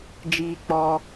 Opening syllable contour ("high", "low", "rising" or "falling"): high